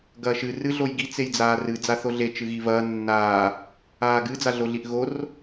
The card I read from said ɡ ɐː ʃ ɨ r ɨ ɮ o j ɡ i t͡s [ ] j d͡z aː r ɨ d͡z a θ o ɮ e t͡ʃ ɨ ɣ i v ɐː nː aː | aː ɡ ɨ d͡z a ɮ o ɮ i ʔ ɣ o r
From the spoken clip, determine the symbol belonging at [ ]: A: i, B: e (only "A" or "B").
B